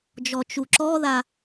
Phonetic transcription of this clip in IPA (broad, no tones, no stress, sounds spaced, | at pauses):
d͡ʒ ɔ t͡ʃ u ǁ ɔ ð a